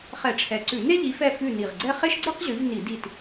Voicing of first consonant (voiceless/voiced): voiceless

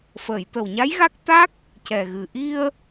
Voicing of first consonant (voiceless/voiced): voiceless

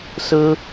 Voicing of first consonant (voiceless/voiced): voiceless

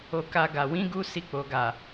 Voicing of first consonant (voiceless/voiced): voiceless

